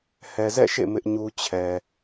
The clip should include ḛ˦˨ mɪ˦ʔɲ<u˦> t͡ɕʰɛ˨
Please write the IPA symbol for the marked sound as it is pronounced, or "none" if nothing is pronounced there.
u˦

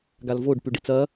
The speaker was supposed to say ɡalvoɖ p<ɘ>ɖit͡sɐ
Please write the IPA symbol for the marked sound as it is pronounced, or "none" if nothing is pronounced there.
ʉ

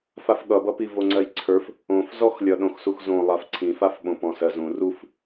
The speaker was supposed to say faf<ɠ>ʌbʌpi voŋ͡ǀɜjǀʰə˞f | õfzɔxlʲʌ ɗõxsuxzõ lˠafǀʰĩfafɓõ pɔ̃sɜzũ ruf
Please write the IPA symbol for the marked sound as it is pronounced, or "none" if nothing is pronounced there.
ɠ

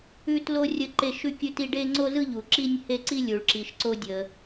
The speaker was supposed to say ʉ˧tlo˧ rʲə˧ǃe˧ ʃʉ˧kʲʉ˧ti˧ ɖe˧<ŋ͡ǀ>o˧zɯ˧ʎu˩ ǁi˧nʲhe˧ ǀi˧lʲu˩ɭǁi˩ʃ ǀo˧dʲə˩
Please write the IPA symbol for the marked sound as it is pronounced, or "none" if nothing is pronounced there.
ŋ͡ǀ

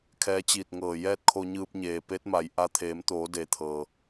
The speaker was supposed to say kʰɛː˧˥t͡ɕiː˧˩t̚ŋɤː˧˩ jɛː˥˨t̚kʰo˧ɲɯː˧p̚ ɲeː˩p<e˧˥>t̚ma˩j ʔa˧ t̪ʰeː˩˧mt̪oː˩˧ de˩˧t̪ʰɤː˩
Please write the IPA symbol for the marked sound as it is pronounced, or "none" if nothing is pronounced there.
e˧˥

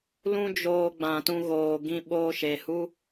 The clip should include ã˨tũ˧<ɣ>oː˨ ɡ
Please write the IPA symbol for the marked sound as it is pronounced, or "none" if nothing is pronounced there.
ɣ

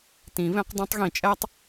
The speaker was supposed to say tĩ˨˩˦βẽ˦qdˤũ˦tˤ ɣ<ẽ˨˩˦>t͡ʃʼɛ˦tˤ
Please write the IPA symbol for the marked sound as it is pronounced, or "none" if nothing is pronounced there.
ĩ˨˩˦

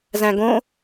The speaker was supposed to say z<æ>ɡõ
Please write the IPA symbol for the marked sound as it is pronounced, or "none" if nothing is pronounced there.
æ̃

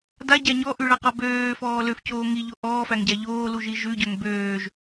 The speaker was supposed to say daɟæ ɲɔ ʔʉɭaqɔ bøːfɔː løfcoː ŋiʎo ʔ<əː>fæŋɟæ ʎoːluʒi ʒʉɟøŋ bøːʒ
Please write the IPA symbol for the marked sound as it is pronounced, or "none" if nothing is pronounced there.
ɔː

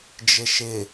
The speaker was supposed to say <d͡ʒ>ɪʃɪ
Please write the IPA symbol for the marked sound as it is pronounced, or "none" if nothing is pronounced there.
d͡ʒ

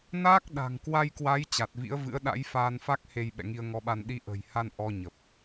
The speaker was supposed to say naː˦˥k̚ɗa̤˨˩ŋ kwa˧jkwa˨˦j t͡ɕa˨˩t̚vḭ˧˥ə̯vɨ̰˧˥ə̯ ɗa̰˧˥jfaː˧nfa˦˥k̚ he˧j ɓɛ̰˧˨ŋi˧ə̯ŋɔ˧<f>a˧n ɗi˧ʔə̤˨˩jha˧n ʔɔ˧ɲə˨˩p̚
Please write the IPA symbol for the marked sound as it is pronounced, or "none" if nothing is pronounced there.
ɓ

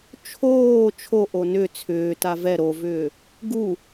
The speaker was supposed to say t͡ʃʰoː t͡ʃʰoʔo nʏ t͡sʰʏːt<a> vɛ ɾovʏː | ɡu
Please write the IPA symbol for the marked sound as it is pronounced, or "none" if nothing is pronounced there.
a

